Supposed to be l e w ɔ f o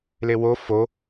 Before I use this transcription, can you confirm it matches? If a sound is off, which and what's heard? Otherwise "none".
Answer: ɔ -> o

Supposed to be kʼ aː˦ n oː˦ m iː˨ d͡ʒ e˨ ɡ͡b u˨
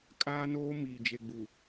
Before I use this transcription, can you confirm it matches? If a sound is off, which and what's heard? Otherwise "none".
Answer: none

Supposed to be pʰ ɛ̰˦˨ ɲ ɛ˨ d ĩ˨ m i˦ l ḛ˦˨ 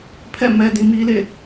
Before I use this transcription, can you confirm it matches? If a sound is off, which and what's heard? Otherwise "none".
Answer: ɲ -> m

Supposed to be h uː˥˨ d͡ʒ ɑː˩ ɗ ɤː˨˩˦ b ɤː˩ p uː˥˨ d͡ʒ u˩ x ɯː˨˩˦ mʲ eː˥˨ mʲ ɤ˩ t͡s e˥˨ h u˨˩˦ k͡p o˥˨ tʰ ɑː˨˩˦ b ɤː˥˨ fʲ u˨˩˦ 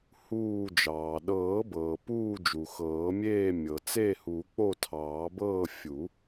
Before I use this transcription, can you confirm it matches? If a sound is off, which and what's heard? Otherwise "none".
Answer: ɯː˨˩˦ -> ɤː˨˩˦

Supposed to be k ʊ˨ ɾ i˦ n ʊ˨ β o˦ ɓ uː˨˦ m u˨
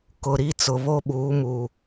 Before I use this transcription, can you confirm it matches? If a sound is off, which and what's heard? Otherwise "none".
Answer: n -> t͡s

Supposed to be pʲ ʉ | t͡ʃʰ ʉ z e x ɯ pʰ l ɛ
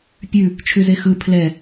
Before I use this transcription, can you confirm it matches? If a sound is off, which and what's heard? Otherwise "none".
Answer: none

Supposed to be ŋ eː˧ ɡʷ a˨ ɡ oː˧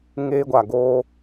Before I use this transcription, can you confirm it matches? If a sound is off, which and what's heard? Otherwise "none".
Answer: none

